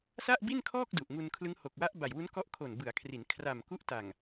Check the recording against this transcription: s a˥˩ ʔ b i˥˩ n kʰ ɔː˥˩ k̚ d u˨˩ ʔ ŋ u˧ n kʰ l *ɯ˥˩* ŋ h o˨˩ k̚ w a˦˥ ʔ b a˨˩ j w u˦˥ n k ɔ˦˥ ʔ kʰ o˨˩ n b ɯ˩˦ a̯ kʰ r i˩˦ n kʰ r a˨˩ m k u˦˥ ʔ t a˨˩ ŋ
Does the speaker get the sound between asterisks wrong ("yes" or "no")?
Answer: yes